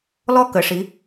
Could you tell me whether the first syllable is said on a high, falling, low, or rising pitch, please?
high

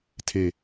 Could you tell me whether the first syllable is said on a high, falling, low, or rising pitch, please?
low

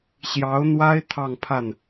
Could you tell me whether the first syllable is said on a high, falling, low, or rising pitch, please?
rising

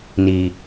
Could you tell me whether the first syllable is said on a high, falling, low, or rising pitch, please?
low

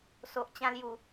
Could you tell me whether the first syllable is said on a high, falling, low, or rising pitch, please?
low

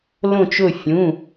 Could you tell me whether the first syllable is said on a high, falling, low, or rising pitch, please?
falling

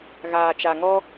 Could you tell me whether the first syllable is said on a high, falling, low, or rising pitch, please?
low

